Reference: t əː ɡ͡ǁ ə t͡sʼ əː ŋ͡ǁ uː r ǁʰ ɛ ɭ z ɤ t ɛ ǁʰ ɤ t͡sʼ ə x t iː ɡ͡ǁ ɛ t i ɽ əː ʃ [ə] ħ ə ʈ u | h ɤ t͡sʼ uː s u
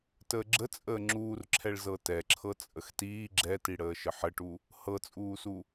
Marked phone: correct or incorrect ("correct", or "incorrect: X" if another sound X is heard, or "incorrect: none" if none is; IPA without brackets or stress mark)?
correct